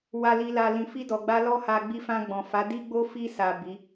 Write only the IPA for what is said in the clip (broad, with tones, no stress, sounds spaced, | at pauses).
w a˨ l i˨ l a˨ l ĩ˨ f i˧ d ɔ˨ ɡ͡b a˧ l ɔ˦ h a˧ ɡ͡b i˧ f ã˧ ɡ͡b ɔ̃˨ f a˨˦ d i˦ ɡ͡b o˦ f i˧ s a˨ b i˨˦